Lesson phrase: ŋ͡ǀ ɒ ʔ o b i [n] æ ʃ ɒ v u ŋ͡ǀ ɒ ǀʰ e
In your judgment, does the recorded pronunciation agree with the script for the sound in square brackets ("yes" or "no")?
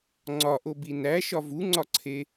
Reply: yes